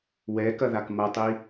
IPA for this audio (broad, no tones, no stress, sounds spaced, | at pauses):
w ɛ k ɐ ð a k m ɐ tˤ i